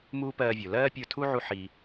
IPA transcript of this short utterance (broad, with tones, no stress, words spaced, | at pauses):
muː˦pɜː˧vʲo˨ lɜː˦pʲə˞˧tʰu˦ ʕu˦ħiː˧